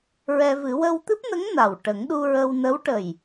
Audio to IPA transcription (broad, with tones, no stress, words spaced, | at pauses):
ɹɛ˧vɨ˨˩˦ wə˧wt̪ɨ˦˥p̚nə˧˥ŋ na˨˩w ʈə˨˩˦ŋɗu˧ɹə˧w nə˧˥wʈə˨˩j